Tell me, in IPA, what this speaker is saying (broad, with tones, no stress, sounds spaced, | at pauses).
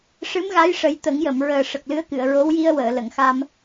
ʂ ɨ˧˥ m ɣ a˧˥ j ʂ ə˨˩˦ j t̪ ə˨˩˦ ŋ j ə˨˩˨ m ɹ əː˨˩ ʂ ə˨˩ k̚ l ɨ˧˥ ə̯ k ɨ˨˩˨ ə̯ ɹ o˧˥ w j i˧ ə̯ w əː˨˩˨ l ə˨˩˨ ŋ x a˧ m